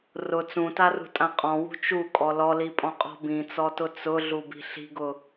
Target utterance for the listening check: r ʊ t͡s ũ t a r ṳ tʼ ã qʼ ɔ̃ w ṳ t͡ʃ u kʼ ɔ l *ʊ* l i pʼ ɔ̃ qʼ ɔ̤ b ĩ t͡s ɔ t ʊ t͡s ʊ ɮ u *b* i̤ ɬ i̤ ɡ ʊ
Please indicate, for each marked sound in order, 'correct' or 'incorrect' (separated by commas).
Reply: incorrect, correct